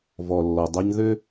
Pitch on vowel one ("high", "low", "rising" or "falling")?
low